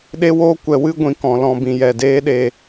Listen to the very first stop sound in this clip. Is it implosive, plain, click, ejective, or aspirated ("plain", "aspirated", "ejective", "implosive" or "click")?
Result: implosive